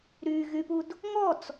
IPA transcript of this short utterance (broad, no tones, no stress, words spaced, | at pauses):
ɾy ɣypud | ŋɔt͡s